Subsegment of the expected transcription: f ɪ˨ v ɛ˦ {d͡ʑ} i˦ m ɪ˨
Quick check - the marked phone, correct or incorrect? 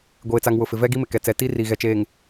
incorrect